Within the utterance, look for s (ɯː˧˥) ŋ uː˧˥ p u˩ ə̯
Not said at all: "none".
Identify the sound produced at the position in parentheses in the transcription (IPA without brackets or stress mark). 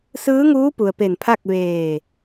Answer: ɯː˧˥